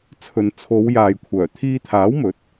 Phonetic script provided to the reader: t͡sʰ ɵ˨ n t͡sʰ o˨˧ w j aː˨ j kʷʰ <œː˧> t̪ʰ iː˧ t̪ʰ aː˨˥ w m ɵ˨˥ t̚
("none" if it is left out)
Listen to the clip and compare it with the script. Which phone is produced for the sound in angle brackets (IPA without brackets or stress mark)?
œː˨˩